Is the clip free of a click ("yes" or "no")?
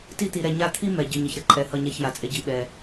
no